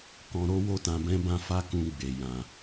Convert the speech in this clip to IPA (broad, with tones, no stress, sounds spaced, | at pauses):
k ɔ̃˧ ɾ o˦ w o˦ t ã˧ b ɛ̃˦ b ã˦ f a˦ k ũ˧ ɡ͡b e˨ j ã˨